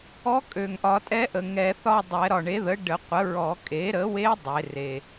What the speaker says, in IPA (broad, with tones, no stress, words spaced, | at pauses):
ɔ˧˥kʼø˨˩ŋʔɒ˨˩˦ tʼɛ˧˥ʔə˨˩ ŋɛ˨˩˦θɒ˥˧dˤɛ˨˩˦ ɾɒ˨˩ɳe˩˥ðə˩˥ ɖə˨˩˦qʷə˩˥ɹɔ˨˩˦ kʼe˩˥ɾə˩˥we˧˥ dˤe˩˥re˨˩